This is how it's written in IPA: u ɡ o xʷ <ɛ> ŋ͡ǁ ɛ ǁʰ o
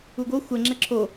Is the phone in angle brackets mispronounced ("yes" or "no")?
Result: no